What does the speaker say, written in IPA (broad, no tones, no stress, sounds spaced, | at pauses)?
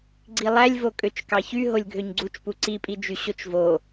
ɡ͡ǀ i lˠ æ lʲ v o kʼ ø t͡ʃ k ɑ ç y ɦ o lʲ ɡʱ ø ɲ ɡ͡ǀ u t͡ʃ p u ǀ i pʼ i d͡ʒ y ɕ o t͡ʃ v o